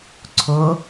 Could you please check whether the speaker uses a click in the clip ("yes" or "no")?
yes